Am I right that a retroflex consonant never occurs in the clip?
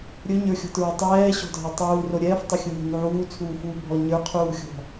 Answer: yes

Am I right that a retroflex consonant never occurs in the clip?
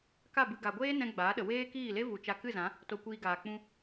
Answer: yes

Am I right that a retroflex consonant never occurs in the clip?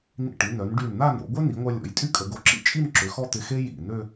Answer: no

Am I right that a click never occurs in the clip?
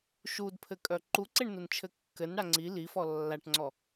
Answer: no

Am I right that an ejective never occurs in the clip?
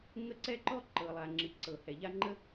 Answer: yes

